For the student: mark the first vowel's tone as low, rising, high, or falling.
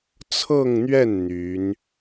falling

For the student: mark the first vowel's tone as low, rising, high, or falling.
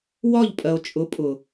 falling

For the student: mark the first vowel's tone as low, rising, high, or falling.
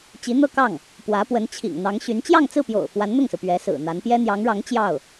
rising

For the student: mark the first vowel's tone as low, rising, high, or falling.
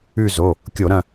falling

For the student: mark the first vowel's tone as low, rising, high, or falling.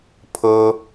high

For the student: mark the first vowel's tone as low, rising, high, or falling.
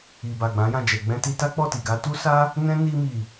low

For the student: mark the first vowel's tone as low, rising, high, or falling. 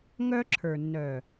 high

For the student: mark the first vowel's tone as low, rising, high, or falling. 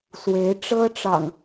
rising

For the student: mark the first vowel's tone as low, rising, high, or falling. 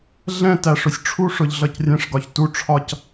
falling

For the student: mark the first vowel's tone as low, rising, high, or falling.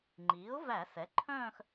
rising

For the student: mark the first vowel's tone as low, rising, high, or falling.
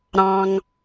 high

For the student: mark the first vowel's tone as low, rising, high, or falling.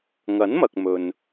rising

